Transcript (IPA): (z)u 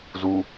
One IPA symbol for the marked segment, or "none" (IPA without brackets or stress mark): z